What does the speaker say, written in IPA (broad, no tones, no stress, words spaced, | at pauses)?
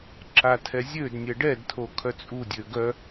ǁatʰɛzʲødnʲɛ ɖɛdtʰo kʰœt͡sʼudʲø ɡœ